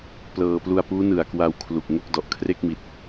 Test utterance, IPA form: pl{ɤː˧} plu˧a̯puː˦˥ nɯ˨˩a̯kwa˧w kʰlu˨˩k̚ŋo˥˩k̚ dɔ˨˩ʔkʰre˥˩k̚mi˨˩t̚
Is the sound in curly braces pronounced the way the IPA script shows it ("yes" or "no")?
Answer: yes